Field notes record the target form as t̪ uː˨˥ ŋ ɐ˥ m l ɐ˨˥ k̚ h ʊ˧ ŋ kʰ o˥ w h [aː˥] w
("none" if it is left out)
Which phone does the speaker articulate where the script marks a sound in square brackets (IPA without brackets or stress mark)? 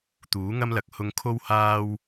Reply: aː˥